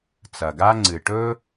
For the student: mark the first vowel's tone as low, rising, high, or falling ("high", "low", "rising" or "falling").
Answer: low